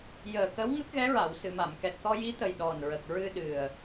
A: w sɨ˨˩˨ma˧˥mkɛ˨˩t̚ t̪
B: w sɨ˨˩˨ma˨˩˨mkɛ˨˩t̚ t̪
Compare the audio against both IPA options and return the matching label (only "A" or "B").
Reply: B